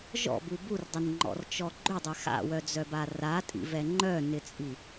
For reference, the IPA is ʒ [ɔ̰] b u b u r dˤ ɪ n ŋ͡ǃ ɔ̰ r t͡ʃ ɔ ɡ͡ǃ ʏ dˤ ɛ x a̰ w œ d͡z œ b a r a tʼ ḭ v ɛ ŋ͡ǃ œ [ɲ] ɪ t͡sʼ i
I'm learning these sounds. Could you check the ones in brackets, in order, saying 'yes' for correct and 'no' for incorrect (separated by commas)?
yes, no